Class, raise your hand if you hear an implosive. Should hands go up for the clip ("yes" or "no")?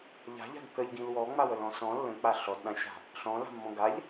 yes